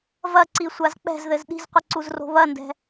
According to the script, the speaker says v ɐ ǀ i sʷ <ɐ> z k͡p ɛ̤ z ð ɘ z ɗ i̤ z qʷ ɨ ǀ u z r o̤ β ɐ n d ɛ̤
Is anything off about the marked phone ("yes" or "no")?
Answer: yes